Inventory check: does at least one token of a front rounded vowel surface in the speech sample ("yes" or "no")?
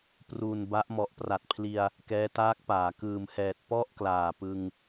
no